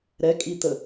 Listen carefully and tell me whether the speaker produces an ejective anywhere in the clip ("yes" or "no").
yes